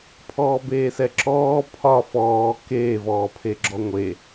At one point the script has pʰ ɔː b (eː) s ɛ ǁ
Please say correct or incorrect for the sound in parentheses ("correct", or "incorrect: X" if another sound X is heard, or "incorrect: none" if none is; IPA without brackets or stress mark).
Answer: correct